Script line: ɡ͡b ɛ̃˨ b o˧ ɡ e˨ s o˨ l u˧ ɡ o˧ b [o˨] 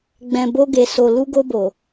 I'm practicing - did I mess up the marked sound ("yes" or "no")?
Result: no